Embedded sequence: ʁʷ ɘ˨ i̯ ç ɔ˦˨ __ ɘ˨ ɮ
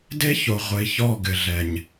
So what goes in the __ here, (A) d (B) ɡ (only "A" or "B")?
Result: B